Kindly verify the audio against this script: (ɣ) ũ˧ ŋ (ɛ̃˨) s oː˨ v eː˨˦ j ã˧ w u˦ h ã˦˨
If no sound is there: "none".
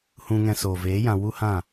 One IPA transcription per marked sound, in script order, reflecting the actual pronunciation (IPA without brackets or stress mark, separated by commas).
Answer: h, ɛ̃˧